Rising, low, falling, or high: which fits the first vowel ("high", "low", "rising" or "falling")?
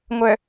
low